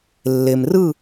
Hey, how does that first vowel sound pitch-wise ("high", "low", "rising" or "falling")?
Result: low